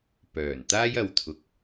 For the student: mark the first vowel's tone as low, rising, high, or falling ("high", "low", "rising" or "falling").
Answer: low